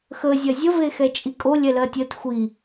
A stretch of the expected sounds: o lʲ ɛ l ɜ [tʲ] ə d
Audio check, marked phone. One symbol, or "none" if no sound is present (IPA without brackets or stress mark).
tʲ